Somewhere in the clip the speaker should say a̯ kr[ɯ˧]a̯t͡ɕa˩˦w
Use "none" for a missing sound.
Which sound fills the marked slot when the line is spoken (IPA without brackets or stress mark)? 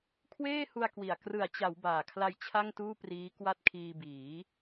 ɯ˩˦